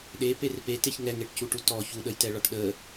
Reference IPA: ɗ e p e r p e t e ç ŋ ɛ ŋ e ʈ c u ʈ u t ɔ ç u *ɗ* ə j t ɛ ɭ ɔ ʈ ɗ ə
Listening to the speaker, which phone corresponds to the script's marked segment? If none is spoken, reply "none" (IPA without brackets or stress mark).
ɗ